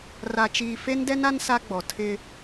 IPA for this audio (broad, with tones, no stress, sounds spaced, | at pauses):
r a˨ t͡ʃ iː˨ f e˦ n d ɛ˦ n a˦ n s a˦ ɡ͡b ɔ˨ tʰ ɪ˦